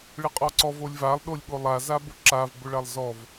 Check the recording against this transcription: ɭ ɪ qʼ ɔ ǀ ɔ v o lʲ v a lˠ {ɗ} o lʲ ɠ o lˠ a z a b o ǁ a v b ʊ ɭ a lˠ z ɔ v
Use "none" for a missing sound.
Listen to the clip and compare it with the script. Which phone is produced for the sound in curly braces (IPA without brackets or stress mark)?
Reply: ɗ